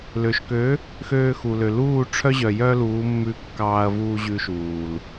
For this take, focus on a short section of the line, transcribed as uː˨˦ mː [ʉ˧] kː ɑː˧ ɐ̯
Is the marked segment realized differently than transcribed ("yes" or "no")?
no